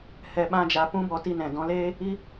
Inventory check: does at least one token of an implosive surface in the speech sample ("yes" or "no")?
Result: yes